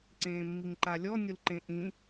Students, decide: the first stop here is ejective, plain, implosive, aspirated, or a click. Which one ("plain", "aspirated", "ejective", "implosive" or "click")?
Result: click